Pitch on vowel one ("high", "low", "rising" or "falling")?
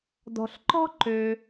low